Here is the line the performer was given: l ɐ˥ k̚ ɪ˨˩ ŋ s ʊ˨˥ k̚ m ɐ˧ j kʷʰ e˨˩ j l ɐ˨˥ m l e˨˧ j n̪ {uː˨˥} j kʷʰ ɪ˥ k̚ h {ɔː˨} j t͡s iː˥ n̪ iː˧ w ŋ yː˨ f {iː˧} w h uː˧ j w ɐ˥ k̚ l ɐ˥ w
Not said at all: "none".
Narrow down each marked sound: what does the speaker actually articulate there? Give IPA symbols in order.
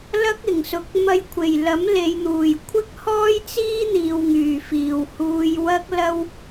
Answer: uː˨˩, ɔː˥, iː˨

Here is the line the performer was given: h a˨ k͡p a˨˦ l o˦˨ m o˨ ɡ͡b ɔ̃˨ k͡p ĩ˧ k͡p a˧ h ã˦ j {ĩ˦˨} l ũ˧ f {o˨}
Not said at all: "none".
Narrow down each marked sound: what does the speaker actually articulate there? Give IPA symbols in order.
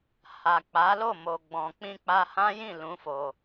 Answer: ĩ˦˨, o˧

